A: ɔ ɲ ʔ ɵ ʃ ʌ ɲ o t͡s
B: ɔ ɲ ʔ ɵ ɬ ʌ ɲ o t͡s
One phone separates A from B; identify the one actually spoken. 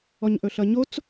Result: B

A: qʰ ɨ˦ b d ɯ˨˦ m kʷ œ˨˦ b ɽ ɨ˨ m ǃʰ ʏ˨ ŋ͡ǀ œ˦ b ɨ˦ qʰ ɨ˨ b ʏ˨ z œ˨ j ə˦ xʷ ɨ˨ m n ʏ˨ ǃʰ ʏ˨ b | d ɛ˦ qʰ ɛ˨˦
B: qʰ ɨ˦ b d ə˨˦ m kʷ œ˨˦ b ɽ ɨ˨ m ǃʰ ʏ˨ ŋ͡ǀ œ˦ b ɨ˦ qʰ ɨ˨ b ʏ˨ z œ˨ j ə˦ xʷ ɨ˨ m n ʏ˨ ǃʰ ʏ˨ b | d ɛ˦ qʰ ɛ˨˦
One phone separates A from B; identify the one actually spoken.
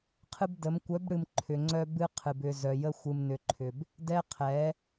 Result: B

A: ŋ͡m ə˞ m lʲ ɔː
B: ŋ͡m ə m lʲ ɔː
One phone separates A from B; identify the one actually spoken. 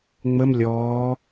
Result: B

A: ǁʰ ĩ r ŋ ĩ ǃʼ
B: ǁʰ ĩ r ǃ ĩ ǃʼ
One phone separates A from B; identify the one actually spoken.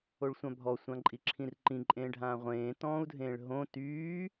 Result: B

